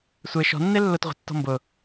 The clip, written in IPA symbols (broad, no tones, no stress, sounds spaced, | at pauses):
sʷ e ʃ ɔ̤ nː e lː ʊ t ʁʷ ɛ̤ tː ɔ̤ m b ʊ